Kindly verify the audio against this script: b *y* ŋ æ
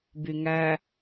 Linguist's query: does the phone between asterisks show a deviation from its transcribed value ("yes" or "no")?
no